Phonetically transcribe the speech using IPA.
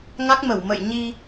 ŋ a˦˥ k̚ m ə˧˩ w m ə̰˧˨ j ɲ i˧

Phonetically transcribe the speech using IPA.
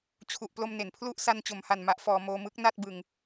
t͡ɕʰ u˨˩ ʔ p l o˧ m n e˩˦ n pʰ l u˥˩ ʔ s a˧ n t͡ɕ o˩˦ m h a˨˩ n m a˦˥ ʔ f ɔː˧ m oː˧ m ɯ˦˥ k̚ n a˥˩ t̚ b ɯ˧ ŋ

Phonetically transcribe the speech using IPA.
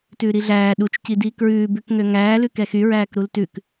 t ʉː ɾ i ɮ æː ɗ u t͡ʃ c i d iː k ɹ ʉː b ʉ k ŋ ø ŋ æː l ʉ k ɛ x y ɹ æː k ɾ u l t ʉ k

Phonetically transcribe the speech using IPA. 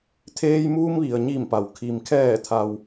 t̪ʰ eː˧ j m uː˧ m ʋ i˩ ə̯ ɲ i˧˩ m p a˩ w kʰ i˩ m kʰ ɛː˧˩ t̪ʰ a˩ w

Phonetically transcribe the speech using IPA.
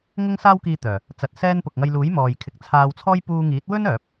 ŋ ʊ˥ ŋ s aː˥ w k iː˧ t̪ œː˨˩ | t͡s ɐ˨ t̚ s ɛː˧ n p ʊ˨ k̚ ŋ ɐ˧ j l uː˨˥ j m ɔː˨ j kʰ ɪ˨˥ k̚ t͡sʰ aː˧ w t͡sʰ ɔː˥ j p uː˧ ŋ iː˨˥ t̚ w ɵ˥ n œː˨˥ p̚

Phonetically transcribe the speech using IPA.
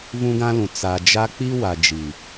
v ũ˦ ɡ ã˦ l ũ˨ t͡s a˨ d͡ʒ a˦ k͡p i˦ w a˨ d͡ʒ i˨

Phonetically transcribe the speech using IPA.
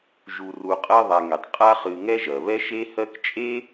ʒ u˨ r u˨ qʼ ɜ˦ ðˤ a˨ ŋ e˩ tˤ qʼ a˦ χ ɨ˨ ŋ ɛ˥ ʒ ɜ˩ β ɛ˥ ʃ e˦ h ɜ˦ k t͡ʃʼ e˥

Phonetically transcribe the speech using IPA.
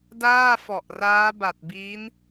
d aː˥˩ f ɔ˨˩ ʔ r aː˦˥ b a˨˩ t̚ b iː˦˥ n

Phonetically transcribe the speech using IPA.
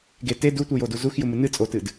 ɡ e t e d u tʷ ɨ j o d u z u x j u m ɨ n ɨ t͡sʼ o t ɨ d

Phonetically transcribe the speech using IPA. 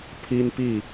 pʰ i˦ n p i˥˨

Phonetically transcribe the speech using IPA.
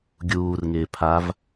ɡʲ uː r ŋ ɪː pʰ a v

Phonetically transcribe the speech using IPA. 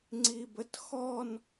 ŋ͡ǀ i b ə t x ɔ n

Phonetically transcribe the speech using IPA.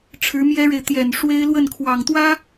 ʈ͡ʂʰ ɻ̩˧˥ m j ɛ˥ ɻ e˨ ɪ̯ t̪ j ɛ˨˩ n ʂ w e˥ ɪ̯ l w ə˥˩ n kʰ w ɑ˨˩ ŋ t̪ w ä˥

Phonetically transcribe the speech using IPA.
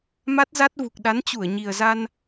m a˦˥ t̚ z a˦˥ t̚ v u˨˩ k̚ ɗ a˨˦ n t͡ɕ u˧˩ ə̯ ɲ i˨˩ ə̯ z a˧ n

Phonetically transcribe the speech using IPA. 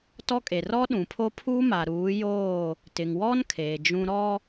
t ɔ˦ kʼ e˨ r ɔ˦ ɗ ũ˨ pʰ o˦ pʰ uː˦ m a˨ ɾ uː˨˦ j oː˦˨ | t ɪ˨ ŋ w ɔ˦ n kʰ eː˨ d͡ʒ ũ˦ ɾ ɔ˦

